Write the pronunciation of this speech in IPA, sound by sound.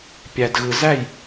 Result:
pʲ æ˨ d ɣ ɯ˨ z æ˦˨ j

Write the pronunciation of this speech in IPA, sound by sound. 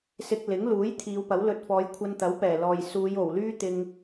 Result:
s ɪ˧ k̚ l ɪ˨˥ ŋ l uː˨˥ j t̪ʰ iː˨˧ w p ɐ˨˥ w l ɵ˧ t̚ f ɔː˨˧ j kʷʰ ɐ˧ n t̪ ɐ˨˥ w p ɛː˨˩ l ɔː˨ j s uː˨˧ j o˨˩ w l yː˥ t̪ ɪ˧ ŋ

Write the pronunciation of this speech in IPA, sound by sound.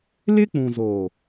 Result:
l ɪ˦ k͡p ũ˨ z o˨

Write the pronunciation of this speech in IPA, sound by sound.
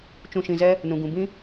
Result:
t͡ʃ ũ˧ ʃ ĩ˧ z ɛ˦ | n ũ˨ ɡ ũ˨ b ĩ˦

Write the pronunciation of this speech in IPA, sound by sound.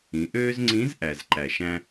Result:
ĩ˩˧ ʔ øː˥ z ŋ͡ǀ ĩ˧˥ z ʔ æ˩ z ǃ æ˩ ʃ æ̃˧

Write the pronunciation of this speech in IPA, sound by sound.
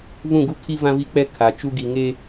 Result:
v ũ˦˨ ɡ u˦ kʰ i˦ v ã˦ v i˦ k͡p ɛ˦ kʰ a˨ t͡ʃ u˦ ɡ i˨ ŋ e˦

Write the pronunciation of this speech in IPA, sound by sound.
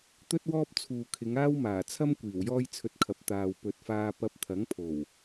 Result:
t̪ ɵ˥ t̚ w ɔː˥ p̚ t͡sʰ uː˨ kʰ ɪ˨˧ ŋ aː˥ w m aː˨˩ t͡sʰ ɐ˥ m kʷ iː˨˩ w j ɔː˥ j t͡sʰ ɵ˧ t̚ kʰ ɐ˨˥ p̚ t̪ aː˨ w p ɵ˨ t̚ f aː˧ p ɐ˧ p̚ t̪ʰ ɐ˨˥ ŋ pʰ o˨˩ w

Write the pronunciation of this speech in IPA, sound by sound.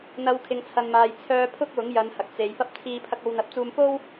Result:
n̪ ɐ˨˧ w kʰ ɪ˨ ŋ t͡sʰ ɐ˨ n m aː˨ j t͡sʰ œː˧ pʰ ʊ˥ k̚ w ʊ˨˥ ŋ j ɐ˨˧ n h ɐ˨ k̚ t͡s e˨˧ j f ɐ˥ p̚ t͡sʰ iː˧ pʰ ɐ˧ k̚ o˨˧ w n̪ ɐ˨˥ p̚ t͡s uː˧ m f o˥ w

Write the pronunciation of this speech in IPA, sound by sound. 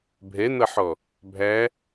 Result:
bʱ ɛ n̪ ʌ ħ ɔ | bʱ æ

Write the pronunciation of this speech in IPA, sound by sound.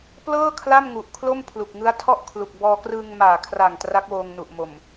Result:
p l ɤː˥˩ kʰ l a˥˩ m ŋ u˨˩ ʔ kʰ l o˥˩ m pʰ l u˨˩ k̚ ŋ ɯ˦˥ a̯ tʰ ɔ˥˩ ʔ kʰ l u˨˩ k̚ b ɔː˧ k r ɯː˧ ŋ m aː˨˩ kʰ r a˨˩ ŋ t r a˦˥ k̚ w oː˧ ŋ n u˨˩ ʔ m o˨˩ m

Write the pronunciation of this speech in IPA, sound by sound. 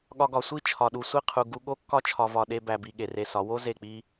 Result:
ɠ ɒ˧ ɡ ɒ˨ sʷ i˦ t͡ʃʰ ɒ˨ ɗ u˨ sʷ i˦˨ qʰ u˨ ɡ u˧ ɠ o˦ kː ɒ˦ t͡ʃʰ ɒ˨ v ɒ˨ ɗ e˧ b æ˨ b i˨ ɠ e˨ r e˧ s ɒ˨˦ w o˦ z e˦˨ k͡p i˦

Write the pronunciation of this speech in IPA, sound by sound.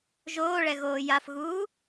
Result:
ʒ oː ɭ ɛ ɣ oː j a f ɣ uː

